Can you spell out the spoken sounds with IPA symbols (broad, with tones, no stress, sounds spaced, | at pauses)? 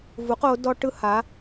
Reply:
v u˩˥ q o˩˥ d ɔ˥ ʈ ɯ˥ h a˩˥